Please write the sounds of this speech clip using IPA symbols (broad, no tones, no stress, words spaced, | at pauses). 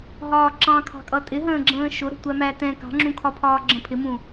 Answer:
ɦɒːǁɑ̃kʰɑ̤kʼʌ tʼɪɦə̃ːɡ͡ǁə̃ː ʃʊɾə̤ tʷæmætɛ̃ kɑ̤ŋ͡ǁũkʰɒpʰɒː ɡ͡ǁə̃pʰɪmũ